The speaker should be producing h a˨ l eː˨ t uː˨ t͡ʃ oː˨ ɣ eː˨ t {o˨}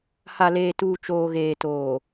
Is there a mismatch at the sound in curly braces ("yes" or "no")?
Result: yes